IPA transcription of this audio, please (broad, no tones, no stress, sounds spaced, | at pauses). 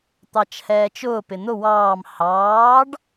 t̪ ɑ t͡ʃ h ɛː t͡ʃ ʊː p ɪ n̪ ʊ w ɑː m h ɑː ɖ